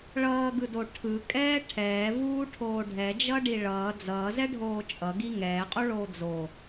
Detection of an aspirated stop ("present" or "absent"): present